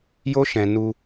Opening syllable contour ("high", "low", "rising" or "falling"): high